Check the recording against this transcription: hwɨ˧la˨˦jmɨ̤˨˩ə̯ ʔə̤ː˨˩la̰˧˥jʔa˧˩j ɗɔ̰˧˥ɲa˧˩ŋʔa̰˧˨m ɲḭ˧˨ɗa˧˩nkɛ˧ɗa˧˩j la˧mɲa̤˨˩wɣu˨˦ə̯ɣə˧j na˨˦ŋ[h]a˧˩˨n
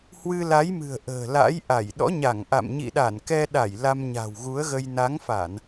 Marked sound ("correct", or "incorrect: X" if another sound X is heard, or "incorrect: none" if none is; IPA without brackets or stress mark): incorrect: f